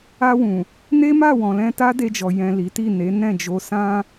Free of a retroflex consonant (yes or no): yes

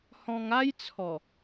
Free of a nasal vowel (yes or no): no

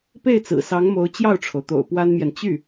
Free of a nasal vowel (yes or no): yes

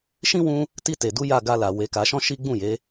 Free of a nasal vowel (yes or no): no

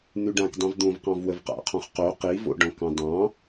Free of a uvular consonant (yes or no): no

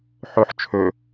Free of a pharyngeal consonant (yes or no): no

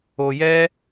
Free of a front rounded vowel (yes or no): yes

